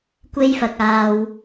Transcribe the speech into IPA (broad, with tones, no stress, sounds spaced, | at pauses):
kʷ e˥ j f ɐ˧ k̚ aː˧ w